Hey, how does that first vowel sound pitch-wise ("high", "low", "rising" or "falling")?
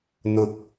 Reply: low